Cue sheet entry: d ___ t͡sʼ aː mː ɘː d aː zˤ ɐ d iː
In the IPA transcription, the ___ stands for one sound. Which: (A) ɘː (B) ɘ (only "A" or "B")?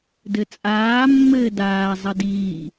B